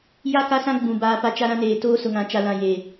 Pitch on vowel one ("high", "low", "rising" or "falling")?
falling